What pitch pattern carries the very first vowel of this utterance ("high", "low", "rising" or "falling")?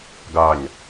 low